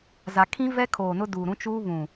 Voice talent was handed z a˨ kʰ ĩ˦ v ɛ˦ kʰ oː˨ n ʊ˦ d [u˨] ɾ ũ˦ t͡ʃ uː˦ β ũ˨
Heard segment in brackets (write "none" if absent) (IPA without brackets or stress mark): u˨